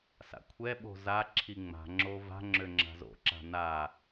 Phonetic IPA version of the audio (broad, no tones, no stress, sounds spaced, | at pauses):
s a̰ kʷʰ ɛ ɓ o̤ z a ǁʰ i ŋ͡m a̤ ŋ͡ǁ o v a̤ ŋ͡ǁ ø ŋ͡ǁ a̤ z o̰ ǁ a̤ n a